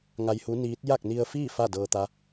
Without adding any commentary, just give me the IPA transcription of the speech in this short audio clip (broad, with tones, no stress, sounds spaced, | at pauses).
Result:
ŋ a˧ j h u˧˥ n iː˧˥ t̚ j a˥˨ k̚ n i˧ ə̯ f iː˥˨ f a˥˨ d ɤː˧ t̪ a˧˥